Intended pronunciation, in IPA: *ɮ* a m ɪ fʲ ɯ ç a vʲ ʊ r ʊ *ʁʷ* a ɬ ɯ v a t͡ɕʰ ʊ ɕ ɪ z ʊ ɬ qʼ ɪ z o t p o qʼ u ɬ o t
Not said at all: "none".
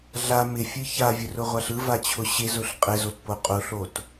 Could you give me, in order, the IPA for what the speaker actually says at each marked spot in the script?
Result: ɮ, ʁʷ

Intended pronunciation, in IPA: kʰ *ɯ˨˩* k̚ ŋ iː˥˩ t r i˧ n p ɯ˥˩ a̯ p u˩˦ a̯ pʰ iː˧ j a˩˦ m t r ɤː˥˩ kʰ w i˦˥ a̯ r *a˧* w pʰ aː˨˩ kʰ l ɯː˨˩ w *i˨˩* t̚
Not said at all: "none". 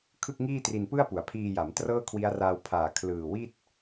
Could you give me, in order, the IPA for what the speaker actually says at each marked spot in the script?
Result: ɯ˥˩, a˧, i˥˩

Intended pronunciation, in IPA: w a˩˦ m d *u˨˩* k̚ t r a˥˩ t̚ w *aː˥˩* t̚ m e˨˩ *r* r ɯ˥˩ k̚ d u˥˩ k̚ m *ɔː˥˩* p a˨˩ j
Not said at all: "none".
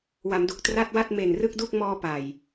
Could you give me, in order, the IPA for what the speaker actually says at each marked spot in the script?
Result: u˨˩, a˥˩, n, ɔː˧

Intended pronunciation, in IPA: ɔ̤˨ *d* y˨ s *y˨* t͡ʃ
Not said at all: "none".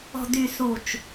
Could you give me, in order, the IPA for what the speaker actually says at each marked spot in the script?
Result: d, u˨

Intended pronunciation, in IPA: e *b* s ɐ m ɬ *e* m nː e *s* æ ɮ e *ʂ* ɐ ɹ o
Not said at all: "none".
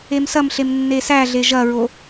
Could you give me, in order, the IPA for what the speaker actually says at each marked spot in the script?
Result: m, e, s, ʒ

